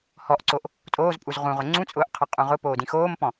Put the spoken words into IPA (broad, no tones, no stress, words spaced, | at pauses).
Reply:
hɔʔǀoʔ | tʼoːzpʼuz ʁũʁʊ ŋ͡ǀũt͡sʼʊːʔqʰɯ qʼũʁʊ poːdĩxoːmpɔ̃